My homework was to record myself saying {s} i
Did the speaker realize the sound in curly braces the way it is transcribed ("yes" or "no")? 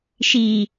no